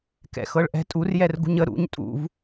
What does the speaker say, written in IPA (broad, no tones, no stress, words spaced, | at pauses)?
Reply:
kɛ̰xɤɭʔɛ̤tʼur jɛrɡṳɲə ɾṵɲ tʼṵv